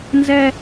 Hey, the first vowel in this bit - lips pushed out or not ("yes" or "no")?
no